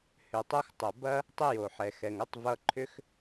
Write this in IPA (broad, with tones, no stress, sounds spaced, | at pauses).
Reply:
h ʏ˨ tˤ o˧ x tˤ ʌ˨ b ɐ˦ | tˤ ə˦ j o˨ ħ ɛ˨ x ɛ˨ ŋ ɐ˦ tˤ v ʌ˧ ǃʰ ʏ˦ x